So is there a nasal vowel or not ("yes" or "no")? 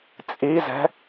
no